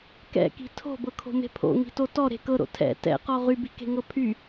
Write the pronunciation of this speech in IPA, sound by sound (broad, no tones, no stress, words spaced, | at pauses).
kɛ̰ki̤ tʰo̤bɤkʰo̤me̤ pʰo̰ŋi̤to tɔɾe̤ kɤɾo̰ tʰɛ̰ tɛ̰qɔ ʁybi̤ke̤ŋɤ pʰy